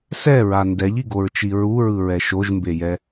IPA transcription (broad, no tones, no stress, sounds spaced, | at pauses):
s ɛ ɹ a n d ɛ ʎ i ɡ o ɹ t͡ʃ i ɹ u ɹ ɯ ɹ ɛ ʃ o ʒ m b e j ɛ